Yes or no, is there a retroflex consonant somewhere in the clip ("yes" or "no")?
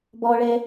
yes